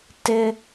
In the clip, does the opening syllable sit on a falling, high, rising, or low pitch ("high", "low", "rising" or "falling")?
high